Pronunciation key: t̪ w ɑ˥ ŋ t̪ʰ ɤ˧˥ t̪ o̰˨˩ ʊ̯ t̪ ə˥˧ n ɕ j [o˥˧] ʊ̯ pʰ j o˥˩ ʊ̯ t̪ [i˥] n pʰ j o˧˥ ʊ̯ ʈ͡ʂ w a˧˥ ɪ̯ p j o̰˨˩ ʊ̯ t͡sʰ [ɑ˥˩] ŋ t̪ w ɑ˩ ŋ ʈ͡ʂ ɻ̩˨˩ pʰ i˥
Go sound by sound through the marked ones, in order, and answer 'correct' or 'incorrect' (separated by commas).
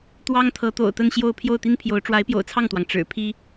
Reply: correct, correct, correct